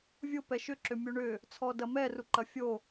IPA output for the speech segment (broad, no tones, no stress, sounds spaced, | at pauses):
vʲ ʊ p ɛ ʃ ʏ ǁ ʏ mʲ u ɳ ʏ | t͡sʰ ɔ d ɐ m ɛ r u ǃ ɐ fʲ o